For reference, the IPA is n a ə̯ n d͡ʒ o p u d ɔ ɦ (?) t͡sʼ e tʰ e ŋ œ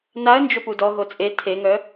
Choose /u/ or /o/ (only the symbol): o